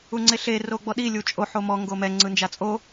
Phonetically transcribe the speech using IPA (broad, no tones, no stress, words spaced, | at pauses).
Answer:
uŋ͡ǀeɬe roɡ͡bɔɗi lʲut͡ʃʼo ħomɔ ŋɡomɛ ŋ͡ǀɯnd͡ʒat͡sʼo